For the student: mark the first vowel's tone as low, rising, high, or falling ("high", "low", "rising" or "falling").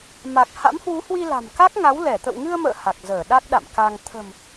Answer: low